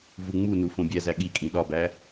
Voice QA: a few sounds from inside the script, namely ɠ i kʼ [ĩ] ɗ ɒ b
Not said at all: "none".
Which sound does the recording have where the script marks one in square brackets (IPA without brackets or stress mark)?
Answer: ĩ